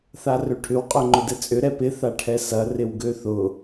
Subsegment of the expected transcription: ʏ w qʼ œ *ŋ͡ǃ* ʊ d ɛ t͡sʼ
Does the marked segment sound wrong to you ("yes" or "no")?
no